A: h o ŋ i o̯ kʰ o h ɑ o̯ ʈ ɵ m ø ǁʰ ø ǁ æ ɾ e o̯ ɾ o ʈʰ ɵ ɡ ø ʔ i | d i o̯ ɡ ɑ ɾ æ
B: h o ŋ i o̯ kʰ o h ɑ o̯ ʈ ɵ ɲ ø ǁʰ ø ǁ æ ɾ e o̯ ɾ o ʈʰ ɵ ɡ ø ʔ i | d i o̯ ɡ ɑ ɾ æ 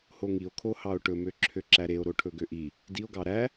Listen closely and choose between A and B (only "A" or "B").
A